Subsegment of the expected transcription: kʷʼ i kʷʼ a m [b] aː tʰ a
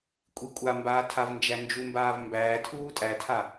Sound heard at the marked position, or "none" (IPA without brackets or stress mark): b